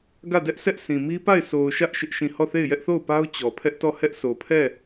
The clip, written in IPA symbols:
ɡä˦˨dɛ˦ʔsʰɛ˦ʔ sʰĩ˨mi˦pa˦˨ɪ̯ so˨ʊ̯ ʃä˦ʔ ʃɪ˦ʔʃĩ˦˨ hɔ˦˨θe˦˨ɪ̯ jɛ˦ʔθo˦˨ʊ̯pa˦ʊ̯ t͡ɕɔ˨pʰɛ˦ʔtɔ˦˨ hɛ˦ʔ sʰo˨pʰɛ˦˨

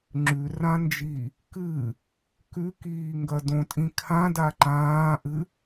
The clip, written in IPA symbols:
ŋ͡ǁʉrãnd͡ʒi | kɨ | kʉkiːŋɡɐ dõtʼĩ kʰãda ǃãːʔɨ

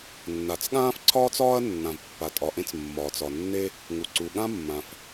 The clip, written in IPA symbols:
nːa˩t͡sɠãː˥fǀʰɒː˥t͡sɒː˥ɐ̯ nːã˩vpːa˩tʼɒ˩ʔẽ˥t͡s mːɒː˩t͡sɒ˩nːe˥ | ŋu˩ǀu˩ ɠã˥mːã˩f

